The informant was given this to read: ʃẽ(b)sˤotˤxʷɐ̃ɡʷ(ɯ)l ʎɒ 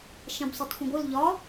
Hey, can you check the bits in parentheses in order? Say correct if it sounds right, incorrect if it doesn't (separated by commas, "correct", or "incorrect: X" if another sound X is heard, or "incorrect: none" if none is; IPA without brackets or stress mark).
correct, correct